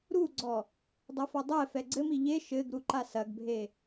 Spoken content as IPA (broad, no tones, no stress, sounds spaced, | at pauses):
ɾ u ɡ͡ǀ ɔ | dˤ ɐ f ɔ dˤ ɛ f ɛ ɡ͡ǀ ɘ m i ʎ e ʃ ɘ ɡ ɾ u ǃ a s ɐ ɡ bʱ e